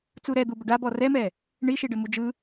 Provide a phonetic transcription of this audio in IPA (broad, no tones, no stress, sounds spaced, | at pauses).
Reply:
t͡s u ɾ ɛ d̪ u b ə ɖ a b ɔ r ɛ m ɛ | ɳ i ʃ i ɖ ə m u d͡ʒ ɯ